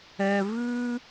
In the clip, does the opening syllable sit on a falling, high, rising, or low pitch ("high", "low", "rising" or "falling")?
low